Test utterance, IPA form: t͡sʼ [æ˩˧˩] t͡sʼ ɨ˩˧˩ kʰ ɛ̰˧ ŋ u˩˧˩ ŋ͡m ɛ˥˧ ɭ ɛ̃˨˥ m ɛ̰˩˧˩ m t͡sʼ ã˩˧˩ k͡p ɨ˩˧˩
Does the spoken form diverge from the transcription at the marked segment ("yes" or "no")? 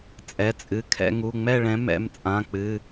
yes